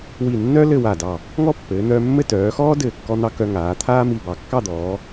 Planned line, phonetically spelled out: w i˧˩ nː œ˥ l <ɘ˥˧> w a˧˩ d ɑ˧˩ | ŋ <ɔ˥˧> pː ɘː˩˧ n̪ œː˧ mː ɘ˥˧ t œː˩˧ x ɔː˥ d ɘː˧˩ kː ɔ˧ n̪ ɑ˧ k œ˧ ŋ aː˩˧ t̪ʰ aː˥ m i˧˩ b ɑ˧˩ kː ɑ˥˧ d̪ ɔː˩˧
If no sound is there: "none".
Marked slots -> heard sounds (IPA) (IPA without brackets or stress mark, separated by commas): ɘ˥˧, ɔ˥˧